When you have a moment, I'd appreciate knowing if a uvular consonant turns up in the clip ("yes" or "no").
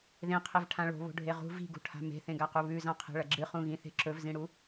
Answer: yes